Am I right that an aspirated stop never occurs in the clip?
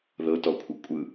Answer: no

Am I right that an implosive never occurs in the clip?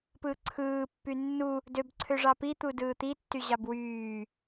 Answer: yes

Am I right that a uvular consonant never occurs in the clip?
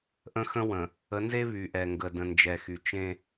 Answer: yes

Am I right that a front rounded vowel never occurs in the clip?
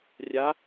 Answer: yes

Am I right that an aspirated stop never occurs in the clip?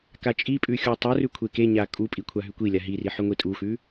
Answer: no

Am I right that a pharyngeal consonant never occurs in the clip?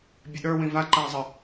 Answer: yes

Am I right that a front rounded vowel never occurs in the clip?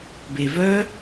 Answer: no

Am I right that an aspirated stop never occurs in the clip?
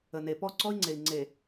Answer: yes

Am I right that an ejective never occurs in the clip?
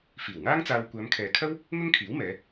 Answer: yes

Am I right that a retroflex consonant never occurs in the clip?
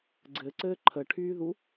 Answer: no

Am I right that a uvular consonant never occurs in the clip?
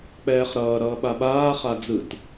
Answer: no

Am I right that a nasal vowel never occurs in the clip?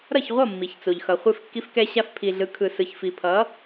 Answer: yes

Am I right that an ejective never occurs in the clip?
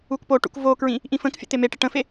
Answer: yes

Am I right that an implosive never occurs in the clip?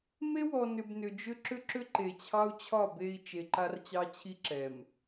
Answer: yes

